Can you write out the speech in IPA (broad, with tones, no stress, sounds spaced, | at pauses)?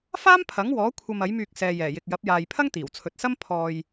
f aː˥ m pʰ ɐ˨˥ ŋ w ɔː˨˥ kʷʰ ɐ˧ m ɐ˨˥ j m yː˧ k̚ s ɛː˨ j ɛː˨˩ j ɪ˨ k̚ j ɐ˨˥ p̚ j aː˨ j pʰ ɐ˥ ŋ t̪ iː˨˩ w t͡sʰ ɵ˨ t̚ s ɐ˥ m pʰ ɔː˧ j